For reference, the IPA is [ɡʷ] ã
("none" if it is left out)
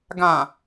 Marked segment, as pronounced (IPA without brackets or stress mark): ɡ